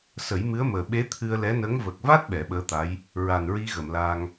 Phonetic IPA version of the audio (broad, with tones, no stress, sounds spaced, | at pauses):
s ə˨˩˦ j m ɨ˧˥ ə̯ m əː˨˩ ɓ e˧˥ t̪ʰ ɨ˧ ə̯ l ɛ˧˥ n ə˧˥ ŋ v ə˨˩ k̚ v a˦˥ t̚ ɓ ɛ˨˩˦ ɓ əː˧˥ t̪ a˧˥ j | ɹ a˨˩ n ɹ i˧ ɣ ə˨˩˨ m l a˧ ŋ